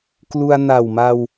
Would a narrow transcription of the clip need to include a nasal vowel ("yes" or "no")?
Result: no